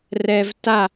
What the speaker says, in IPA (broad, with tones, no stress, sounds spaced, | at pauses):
r ɛ˧ v t a˦˨